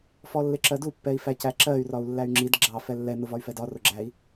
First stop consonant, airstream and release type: click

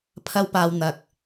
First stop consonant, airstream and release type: aspirated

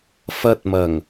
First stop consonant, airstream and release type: plain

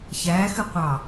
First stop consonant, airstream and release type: plain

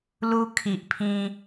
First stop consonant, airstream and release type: aspirated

